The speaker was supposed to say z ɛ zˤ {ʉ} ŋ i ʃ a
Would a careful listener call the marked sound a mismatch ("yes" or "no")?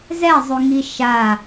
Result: no